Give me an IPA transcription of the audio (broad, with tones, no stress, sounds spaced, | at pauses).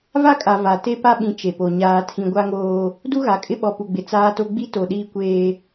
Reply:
v a˦ kʼ a˨ v a˨ t e˦ p a˦ ɓ ĩ˨ t͡ʃ e˨ p o˨ ɲ aː˨ tʰ ĩ˨ ɡʷ a˦ ŋ oː˦ | d u˦ ɣ a˨ kʼ ɪ˦ ɓ ɔ˨ p u˨ ɡ͡b ɪ˨ t͡s aː˦ t o˦ ɡ͡b i˦ t o˨ ɗ iː˦ kʷ eː˦